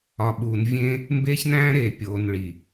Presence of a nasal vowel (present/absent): present